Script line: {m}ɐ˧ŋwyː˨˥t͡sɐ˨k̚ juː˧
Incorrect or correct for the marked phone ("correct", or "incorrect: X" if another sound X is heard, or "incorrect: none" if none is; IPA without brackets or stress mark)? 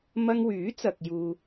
correct